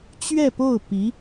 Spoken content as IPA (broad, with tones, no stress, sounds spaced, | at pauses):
t͡ɕ ɥ ɛ˥˧ p o˥˩ ʊ̯ p i˧˥